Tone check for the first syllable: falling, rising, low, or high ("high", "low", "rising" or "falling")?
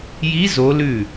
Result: rising